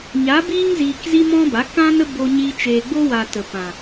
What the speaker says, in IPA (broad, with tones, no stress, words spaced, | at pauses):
ɲa˨˦biː˦ŋziː˨kzi˦ mɔ̃˦ba˨˦ kã˦nə˦ bo˧ɲiː˧ t͡ʃeː˨ɡ͡bo˦wa˨ tə˨pã˨